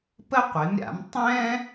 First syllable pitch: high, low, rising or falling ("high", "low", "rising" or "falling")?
high